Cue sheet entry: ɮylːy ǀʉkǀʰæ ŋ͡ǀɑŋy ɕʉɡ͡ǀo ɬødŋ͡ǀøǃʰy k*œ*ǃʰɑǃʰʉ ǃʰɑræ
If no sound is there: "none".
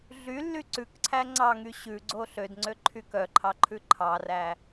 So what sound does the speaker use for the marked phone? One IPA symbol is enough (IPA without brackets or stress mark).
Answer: œ